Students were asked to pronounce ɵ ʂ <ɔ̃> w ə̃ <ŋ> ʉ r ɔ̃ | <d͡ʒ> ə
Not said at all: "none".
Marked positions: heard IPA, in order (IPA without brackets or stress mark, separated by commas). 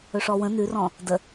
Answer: ɔ, n, d